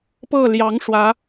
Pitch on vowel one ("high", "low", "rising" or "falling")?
falling